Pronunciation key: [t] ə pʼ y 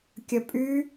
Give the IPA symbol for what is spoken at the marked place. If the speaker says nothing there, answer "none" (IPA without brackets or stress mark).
kʲ